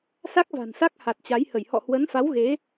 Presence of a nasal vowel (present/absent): absent